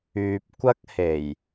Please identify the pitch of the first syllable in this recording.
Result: low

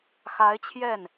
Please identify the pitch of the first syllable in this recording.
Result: rising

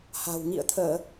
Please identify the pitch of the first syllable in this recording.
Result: low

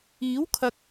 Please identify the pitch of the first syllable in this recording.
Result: rising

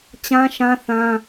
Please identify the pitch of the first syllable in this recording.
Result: high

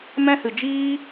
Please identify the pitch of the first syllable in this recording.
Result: high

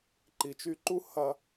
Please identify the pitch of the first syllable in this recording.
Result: low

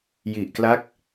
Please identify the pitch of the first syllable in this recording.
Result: low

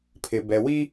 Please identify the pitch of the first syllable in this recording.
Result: low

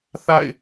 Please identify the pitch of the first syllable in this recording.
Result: falling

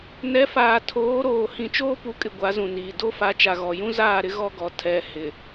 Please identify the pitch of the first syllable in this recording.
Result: rising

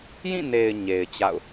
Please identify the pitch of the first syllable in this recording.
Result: falling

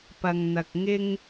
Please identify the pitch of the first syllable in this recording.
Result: low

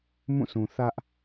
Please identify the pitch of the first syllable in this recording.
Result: falling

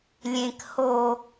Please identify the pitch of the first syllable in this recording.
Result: low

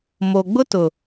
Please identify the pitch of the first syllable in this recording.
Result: low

